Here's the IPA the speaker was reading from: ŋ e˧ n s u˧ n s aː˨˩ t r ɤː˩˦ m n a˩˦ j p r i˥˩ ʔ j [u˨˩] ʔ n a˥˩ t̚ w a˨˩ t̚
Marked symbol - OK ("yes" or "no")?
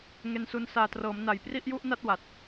no